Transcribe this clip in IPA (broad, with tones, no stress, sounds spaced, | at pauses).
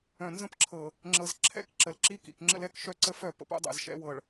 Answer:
œ̃˨ n z ə̃˦ p ǁʰ ɤ˨ | ŋ͡ǁ ɤ˨ z ǁʰ ɛ̰˦ k ǁ ə˨ l ǁ i˦ k ḭ˨ k ŋ͡ǁ ə̰˦ l ɛ˦ k ʃ œ˦ ǀ ə˦ f œ˦˨ p ə̰˦ p o̰˦ dˤ ɛ̰˨ z ʃ ɛ̰˨˦ w ɤ˨ ɭ